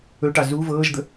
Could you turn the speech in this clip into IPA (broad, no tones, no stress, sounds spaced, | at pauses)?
ɵ ʈ ɑ z u v ɤː ʒ d̪ ə